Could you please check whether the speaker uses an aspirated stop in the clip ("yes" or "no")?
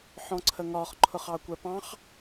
yes